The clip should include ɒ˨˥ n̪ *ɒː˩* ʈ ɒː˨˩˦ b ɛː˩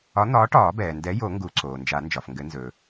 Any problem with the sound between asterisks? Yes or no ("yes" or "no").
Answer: yes